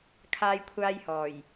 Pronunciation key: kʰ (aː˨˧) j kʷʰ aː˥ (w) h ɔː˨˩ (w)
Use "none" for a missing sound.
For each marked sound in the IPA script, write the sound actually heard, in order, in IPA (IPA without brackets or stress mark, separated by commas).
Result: aː˥, j, j